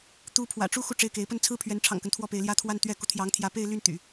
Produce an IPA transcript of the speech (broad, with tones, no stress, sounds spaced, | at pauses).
t̪ u˧˥ pʰ w ä̰˨˩ ʈ͡ʂ u˥ x u˥˧ ʈ͡ʂ e˥˩ ɪ̯ k e˧˥ ɪ̯ p ə˥˩ n t͡sʰ ɹ̩˥ pʰ ɥ ɛ˧˥ n ʈ͡ʂʰ ɑ̰˨˩ ŋ k ə˦ n t̪ʰ w ɔ˥˩ p e˧˥ ɪ̯ l j ä˥˧ t̪ʰ w a˥˧ n t̪ ɥ ɛ˥˩ k u˧˥ t̪ʰ j ɑ˧˥ ŋ t̪ʰ j ä˧˥ p e˥˧ ɪ̯ l y˥˩ n t̪ y̰˨˩˦